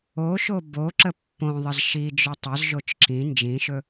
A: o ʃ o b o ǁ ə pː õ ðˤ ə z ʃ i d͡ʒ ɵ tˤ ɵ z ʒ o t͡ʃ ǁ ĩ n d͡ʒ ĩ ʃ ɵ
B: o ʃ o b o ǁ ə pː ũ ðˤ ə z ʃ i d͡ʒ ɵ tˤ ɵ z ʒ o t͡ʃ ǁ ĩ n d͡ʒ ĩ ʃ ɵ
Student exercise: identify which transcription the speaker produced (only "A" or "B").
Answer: A